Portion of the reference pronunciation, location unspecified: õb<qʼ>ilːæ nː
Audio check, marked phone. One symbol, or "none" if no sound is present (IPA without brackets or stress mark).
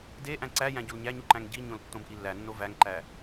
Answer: ʔ